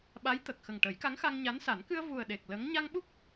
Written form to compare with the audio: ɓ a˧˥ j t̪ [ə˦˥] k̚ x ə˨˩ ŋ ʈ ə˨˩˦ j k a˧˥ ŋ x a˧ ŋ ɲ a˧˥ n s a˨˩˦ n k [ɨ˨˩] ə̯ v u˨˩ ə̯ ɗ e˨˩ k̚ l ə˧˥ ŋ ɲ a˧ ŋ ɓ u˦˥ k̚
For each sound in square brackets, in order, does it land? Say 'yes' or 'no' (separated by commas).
no, no